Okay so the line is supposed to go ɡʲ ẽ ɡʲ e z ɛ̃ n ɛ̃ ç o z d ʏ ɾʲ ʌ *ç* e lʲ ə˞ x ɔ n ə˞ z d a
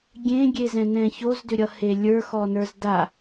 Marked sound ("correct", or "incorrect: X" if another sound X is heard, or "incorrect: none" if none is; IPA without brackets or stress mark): incorrect: h